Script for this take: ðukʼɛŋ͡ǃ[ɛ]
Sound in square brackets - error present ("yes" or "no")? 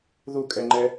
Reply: no